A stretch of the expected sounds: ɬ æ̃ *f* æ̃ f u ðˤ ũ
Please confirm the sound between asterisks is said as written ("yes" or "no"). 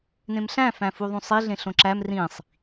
yes